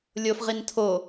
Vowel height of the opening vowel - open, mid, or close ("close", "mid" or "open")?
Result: mid